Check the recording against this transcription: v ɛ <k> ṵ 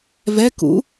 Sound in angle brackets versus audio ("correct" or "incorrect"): correct